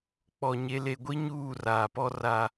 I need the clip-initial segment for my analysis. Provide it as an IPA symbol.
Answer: k͡p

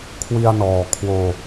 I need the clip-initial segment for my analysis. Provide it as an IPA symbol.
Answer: kʰ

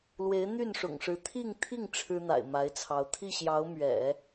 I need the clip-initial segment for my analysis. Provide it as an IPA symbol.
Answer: l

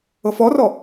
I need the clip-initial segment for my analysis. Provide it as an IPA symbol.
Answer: ɤ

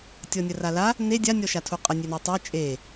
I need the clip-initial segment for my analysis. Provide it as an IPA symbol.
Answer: tʲ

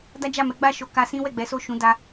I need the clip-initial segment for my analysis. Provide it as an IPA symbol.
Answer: d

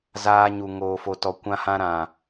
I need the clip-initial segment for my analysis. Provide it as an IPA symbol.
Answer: z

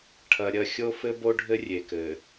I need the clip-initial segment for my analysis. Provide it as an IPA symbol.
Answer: ʈʰ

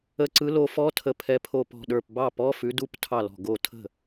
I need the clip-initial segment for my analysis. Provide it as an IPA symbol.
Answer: ə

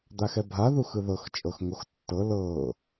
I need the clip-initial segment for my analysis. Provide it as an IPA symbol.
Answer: d̪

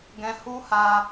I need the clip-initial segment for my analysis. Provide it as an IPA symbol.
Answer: ɡ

